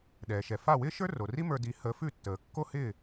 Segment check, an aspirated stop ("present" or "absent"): absent